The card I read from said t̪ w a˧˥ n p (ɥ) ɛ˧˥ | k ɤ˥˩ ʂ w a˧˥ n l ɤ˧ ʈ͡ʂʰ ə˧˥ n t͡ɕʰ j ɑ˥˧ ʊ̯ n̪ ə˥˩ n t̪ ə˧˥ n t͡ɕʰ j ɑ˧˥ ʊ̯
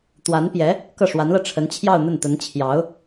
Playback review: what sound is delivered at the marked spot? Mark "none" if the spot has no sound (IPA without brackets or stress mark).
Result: j